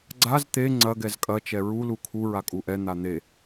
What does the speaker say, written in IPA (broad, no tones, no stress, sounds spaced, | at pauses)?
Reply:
ɡ͡ǀ a z t̪ e ŋ͡ǀ ɐ ɡ ɛ z kʼ ɐ t͡ʃ ɛ ɹ u l u kʰ u ɹ a kʼ u ʔ ɛ n̪ a n̪ e